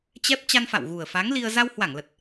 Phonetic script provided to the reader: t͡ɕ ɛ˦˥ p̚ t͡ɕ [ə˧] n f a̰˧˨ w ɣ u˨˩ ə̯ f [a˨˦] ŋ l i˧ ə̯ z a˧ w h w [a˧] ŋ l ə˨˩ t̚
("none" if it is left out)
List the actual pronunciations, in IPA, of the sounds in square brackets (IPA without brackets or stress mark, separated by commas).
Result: a˧, a˨˦, a˧˩